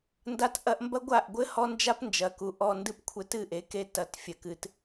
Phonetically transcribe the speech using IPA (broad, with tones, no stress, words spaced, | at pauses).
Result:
nda˦tʔɐ˦ʔ mbɐ˦ɡʷa˦˨ʔɡʷɘ˦ hɔ˦nd͡ʒa˦pnd͡ʒɐ˨ku˨ ʔɔ˧ndɨ˦p kʷʰɘ˧tɨ˦˨ʔe˨˦ke˧ tɐ˨t fʲɘ˨kɨ˨t